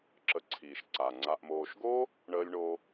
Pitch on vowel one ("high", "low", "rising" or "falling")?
low